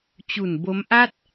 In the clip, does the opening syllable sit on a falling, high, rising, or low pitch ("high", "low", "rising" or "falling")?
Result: low